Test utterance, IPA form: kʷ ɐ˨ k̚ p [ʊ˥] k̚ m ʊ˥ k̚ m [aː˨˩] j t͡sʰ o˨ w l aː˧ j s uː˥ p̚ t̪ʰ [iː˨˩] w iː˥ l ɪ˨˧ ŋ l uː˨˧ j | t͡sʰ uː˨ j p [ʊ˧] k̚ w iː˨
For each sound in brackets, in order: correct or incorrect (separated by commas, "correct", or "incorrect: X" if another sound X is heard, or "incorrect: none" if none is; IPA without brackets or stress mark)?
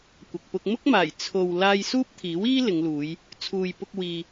incorrect: ʊ˧, correct, incorrect: iː˨˥, correct